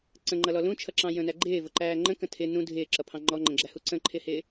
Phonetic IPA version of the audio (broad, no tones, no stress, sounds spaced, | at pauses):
ǀ ə̃ ŋ͡ǃ ʌ l ɔ l ũ t͡ʃʰ ʌ ǁ ɑ̃ j ə̃ n æ ɡ͡ǃ ɪː v ʊ ǃ æː ŋ͡ǃ ə̃ k ə̃ tʰ ɪ n ũ dʱ ɪː ǁ ʌ pʰ ɑ̃ ŋ͡ǃ ɔ ŋ͡ǃ ə̃ ɡ͡ǁ æ h u ǀ ə̃ ǃʰ ɪ h ɪː